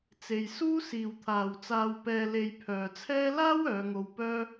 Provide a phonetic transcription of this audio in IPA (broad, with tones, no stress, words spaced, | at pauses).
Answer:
t͡se˧jsuː˥ siː˨wt̪ʰaː˨wt͡saː˧w pɛː˧le˧jpʰœː˨t͡sʰɛː˥ laː˥w œː˨˧ŋo˧wpœː˥